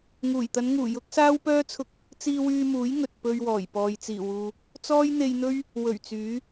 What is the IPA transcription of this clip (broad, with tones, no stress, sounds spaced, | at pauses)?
ŋ uː˨˩ j t̪ ɐ˨˧ n ŋ uː˨˩ j ʊ˥ k̚ s aː˥ w p œː˥ t͡sʰ ʊ˧ k̚ | t͡s iː˧ w yː˧ m uː˨˥ j ŋ ɵ˨ t̚ p ɵ˧ ɥ w ɔː˨˩ j p ɔː˨ j t͡s iː˨˩ w uː˨ | t͡s ɔː˥ j n̪ e˧ j n̪ ɵ˥ ɥ | w ɵ˨˩ ɥ t͡s yː˨˥